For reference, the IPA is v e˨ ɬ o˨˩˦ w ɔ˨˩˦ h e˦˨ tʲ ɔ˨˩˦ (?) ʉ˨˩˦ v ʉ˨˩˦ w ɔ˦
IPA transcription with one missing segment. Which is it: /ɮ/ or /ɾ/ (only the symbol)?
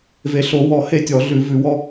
ɮ